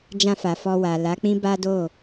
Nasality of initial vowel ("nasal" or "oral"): nasal